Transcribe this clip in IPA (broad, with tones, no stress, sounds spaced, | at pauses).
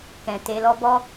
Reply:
k ɛ̃˨ t e˧ l ɔ˦ b ɔ˦